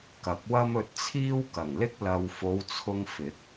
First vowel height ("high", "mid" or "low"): low